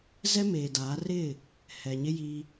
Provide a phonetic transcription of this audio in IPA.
z ɛ˦ m eː˨ d aː˨˦ r ɪ˦˨ | h ɛ˨ ɲ ɪ˦ j i˦

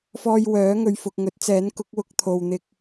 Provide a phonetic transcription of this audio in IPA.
f ɔː˧ j w œː˨˥ ŋ ɵ˨ ɥ f ʊ˨ k̚ ŋ ɵ˨˥ t̚ t͡s ɛː˨˥ n k ʊ˨˥ k̚ w ʊ˧ k̚ t̪ʰ o˨ w n̪ ɪ˧ k̚

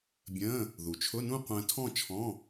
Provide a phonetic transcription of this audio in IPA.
bʲ ə̃ː˧˥˧ | ð u˩ t͡ʃʰ ʊ˧˥˧ n ũ˥˧ qʷ ə̃ː˧ tʰ ɔ̃˥˧ t͡ʃʰ ɔ̃˧˥˧

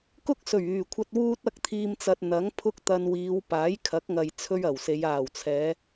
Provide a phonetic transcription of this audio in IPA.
k ʊ˥ k̚ s ɵ˨˩ ɥ yː˨˩ kʷʰ ɐ˧ t̚ w uː˥ t̚ ɐ˥ k̚ t̪ʰ iː˧ m t͡s ɐ˧ t̚ n̪ ɐ˨˥ ŋ pʰ ʊ˥ k̚ t̪ ɐ˧ n w iː˨˧ w p aː˨˥ j kʰ ɐ˨˥ k̚ ŋ ɐ˨ j t͡sʰ ɵ˥ ɥ ɐ˨˩ w s e˨˧ j aː˨˩ w t͡sʰ ɛː˨˧

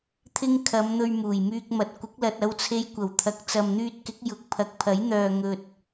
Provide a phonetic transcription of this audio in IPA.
t̪ʰ ɪ˥ ŋ kʰ ɐ˨˧ m n̪ ɵ˧ ɥ m uː˨˩ j m yː˧ k̚ m ɐ˨ t̚ kʷ ɪ˨˥ k̚ l ɐ˨ t̚ ɐ˧ w t͡sʰ e˧ j kʷ ɐ˨˩ w t̪ʰ ɐ˨ k̚ t͡s ɐ˨ m n̪ yː˧ t̚ k ɪ˨˥ k̚ j ʊ˧ k̚ pʰ ɐ˨˥ k̚ pʰ ɐ˨˥ j n̪ œː˨ ŋ ɵ˨ t̚

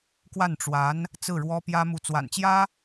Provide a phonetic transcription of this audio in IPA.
k w a˥˩ n ʈ͡ʂ w a˧˥ n | t͡s ɹ̩˥˩ ɻ w ɔ˥ p j ä˥ m u˧˥ t͡s w a̰˨˩ n t͡ɕ j ä˥

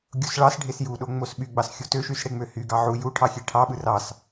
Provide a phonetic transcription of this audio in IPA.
ɡʲ o s ɭ ɑ s ɖʱ e s j u ɗ o ŋ͡m o s ɓ y ɡ͡b ɑ s xʲ u t ø ʃ y s ɽ e ŋ͡m ø h y ɡ ɑ ʕ u j u ʈʰ ɑ xʲ e ʈʰ ɑ ɓ ɯ r ɑ s

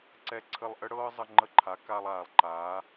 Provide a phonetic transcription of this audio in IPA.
ǀ ɛ˧ ǀʰ ə˧ lˠ ʔ ə˥ ɽ ɤː˥ zˤ ə˧ ŋ͡ǃ ə˧˥ ǃʰ a˩˧ k a˧ lˠ aː˩ lˠ ǃ aː˩˧

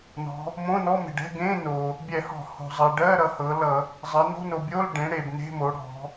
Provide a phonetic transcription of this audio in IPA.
n ɔ̤˩˧ | m õ˧˥˧ n ɔ˧˥˧ m e̤˩ ɖ ɛ̤˧˥˧ ɡ ẽ˧˥˧ n o˩ | bʲ ɛ˧˩˧ h ɔ̤˧˩˧ h o̤˩ zˤ ɜ˩ ɖ ɜ˧˥˧ ɾ ʌ˩˧ h ɤ˩˧ l ʌ˧˩˧ | zˤ ɜ˩˧ n o̤˧˥˧ n o˩ bʲ o˧˥˧ l ɖ ẽ˩˧ ɽ e˩ b n e̤˧˥˧ m o˩˧ ɽ ɔ̤˩˧

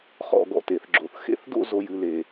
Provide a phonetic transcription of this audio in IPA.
χ ɔ̰˥˧ ɡ ɔ̰˥˧ t e˩˧ θ ɡ͡ǁ o˨˩ θ x ḛ˥˧ θ d o̰˥˧ z o˥˧ j ɨ˥˧ l e˨˩

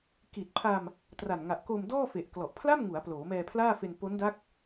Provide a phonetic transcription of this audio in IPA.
k i˨˩ t̚ pʰ a˧ m | t r a˨˩ n ŋ a˨˩ ʔ k o˧ m d ɔː˥˩ f e˨˩ ʔ k l ɔ˨˩ ʔ pʰ l a˥˩ m ŋ u˩˦ a̯ p l oː˩˦ m ɛː˧ pʰ l aː˥˩ f e˧ n p o˦˥ n d a˦˥ k̚

